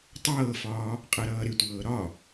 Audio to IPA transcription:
tˤɤːfɒː | qʼɤɾʌːɾɪtʷɤː ɾɒ

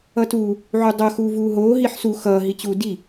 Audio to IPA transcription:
ʌtuː | ʕudˤʌ xuːvuːɦoː ɦiħsu xʌː ɦit͡ɕuːdi

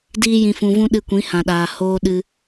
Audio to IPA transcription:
diː˦jĩ˧fũ˧vũ˦ ɗɨ˧kʷĩ˨˦hã˨ɗaː˨ hoː˧ ɗɨ˧

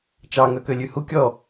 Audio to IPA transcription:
t͡ʃɑŋœ kølʲʉhu kʲɔ

